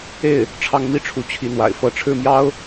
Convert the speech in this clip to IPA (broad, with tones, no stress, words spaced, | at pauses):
e˥˩ɪ̯ | ʈ͡ʂʰɑ˥ŋ mi˥˩ʈ͡ʂʰu˧˥ t͡ɕʰi˧˥n̪wa̰˨˩ɪ̯ fɤ˧˥ ʈ͡ʂʰɻ̩˥˩mjɑ˥ʊ̯